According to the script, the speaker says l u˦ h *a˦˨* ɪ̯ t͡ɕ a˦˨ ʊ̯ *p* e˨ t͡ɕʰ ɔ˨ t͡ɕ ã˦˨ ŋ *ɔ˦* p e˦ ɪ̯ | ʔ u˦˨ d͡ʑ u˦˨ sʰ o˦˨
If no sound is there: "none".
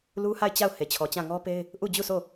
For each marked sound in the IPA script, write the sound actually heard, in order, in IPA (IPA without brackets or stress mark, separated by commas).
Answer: a˦˨, h, ɔ˦